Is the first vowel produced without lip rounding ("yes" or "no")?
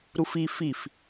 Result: no